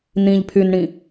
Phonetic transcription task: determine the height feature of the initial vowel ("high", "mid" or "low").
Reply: high